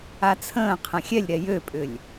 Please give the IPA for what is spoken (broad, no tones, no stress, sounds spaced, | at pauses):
a t͡sʰ ə̃ː qʰ ɐ̃ xʲ ɛ lʲ ɾ ɛ j ø pʼ ʏ lʲ